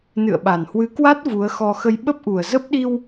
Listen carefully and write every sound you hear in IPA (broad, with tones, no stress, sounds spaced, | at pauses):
n ɨ̰˧˨ ə̯ ɓ a˨˩ n h w ɨ˨˦ k w a˦˥ t̚ v u˨˦ ə̯ x ɔ˧ x ə˧ j ɓ ə˦˥ p̚ ʔ u˨˩ ə̯ z ə˦˥ p̚ ɗ i˧ w